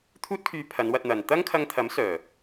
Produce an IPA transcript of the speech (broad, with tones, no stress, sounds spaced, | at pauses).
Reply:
t̪ʰ uː˥ t̚ kʰ yː˧ pʰ ɐ˨˧ n w ɐ˧ t̚ n̪ ɐ˨ n t̪ ɐ˥ ŋ kʰ ɐ˧ ŋ t̪ʰ ɐ˨˥ m s œː˨˩